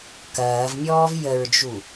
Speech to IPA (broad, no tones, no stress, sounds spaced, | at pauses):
k ɐː v mʲ ɔː v j ə ɹ d͡ʒ u